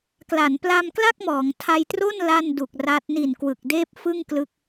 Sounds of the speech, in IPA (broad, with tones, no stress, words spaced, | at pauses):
kla˩˦npla˧mkla˥˩k̚mɔː˩˦ŋ tʰa˧jtro˥˩n la˥˩ndu˨˩k̚ ra˦˥t̚ ni˨˩n kwɯ˨˩k̚deː˥˩p̚fɯ˥˩ŋ klɯ˥˩k̚